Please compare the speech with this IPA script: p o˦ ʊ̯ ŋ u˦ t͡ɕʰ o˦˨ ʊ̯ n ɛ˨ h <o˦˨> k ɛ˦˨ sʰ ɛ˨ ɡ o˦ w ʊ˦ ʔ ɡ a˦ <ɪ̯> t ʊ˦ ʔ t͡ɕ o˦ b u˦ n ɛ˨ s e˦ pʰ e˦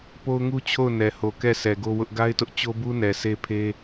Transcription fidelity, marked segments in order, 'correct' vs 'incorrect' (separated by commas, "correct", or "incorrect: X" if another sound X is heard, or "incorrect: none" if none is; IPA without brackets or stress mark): incorrect: o˨, correct